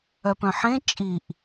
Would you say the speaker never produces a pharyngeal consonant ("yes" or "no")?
no